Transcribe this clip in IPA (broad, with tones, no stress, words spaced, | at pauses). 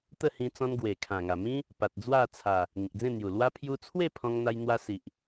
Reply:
t̪ə˥˧hĩ˧t͡sɔ̃˧nɡwe˨˩ kʰã˨˩ŋa˨˩mĩ˦ | pa˨t̚d͡zwa˥˧t͡sʰa˨˩ | ŋĩ˨k̚d͡zẽ˥˧n̪ju˨˩ lwa˧pʰju˧t͡sʰwe˥˧ pʰɔ̃˧ŋn̪a˧jn̪wa˧ si˨ʔ